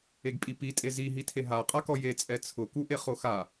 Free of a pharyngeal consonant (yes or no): yes